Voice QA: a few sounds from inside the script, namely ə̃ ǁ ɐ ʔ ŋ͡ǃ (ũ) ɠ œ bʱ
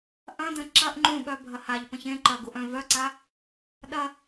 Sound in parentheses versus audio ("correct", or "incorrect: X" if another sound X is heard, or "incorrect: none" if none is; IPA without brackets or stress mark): correct